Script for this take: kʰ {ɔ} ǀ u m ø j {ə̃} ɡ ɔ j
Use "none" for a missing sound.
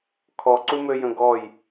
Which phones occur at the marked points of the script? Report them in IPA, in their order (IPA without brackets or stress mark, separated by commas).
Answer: ɔ, ə̃